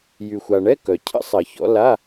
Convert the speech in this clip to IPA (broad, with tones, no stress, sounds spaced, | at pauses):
j y˨ xʷ a˨ ɳ ɛ˧˥˧ k œ˨ cʰ ə̰˦˥ sˤ ɐ˨˩˦ ç ɔ̰˨˦ l a˧˥˧